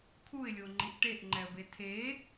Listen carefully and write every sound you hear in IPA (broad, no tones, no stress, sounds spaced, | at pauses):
kʰ u ɪ̯ lʲ o ŋ͡ǃ i ʔ ʈ e ʔ ŋ͡ǃ ɛ ə̯ b e tʰ e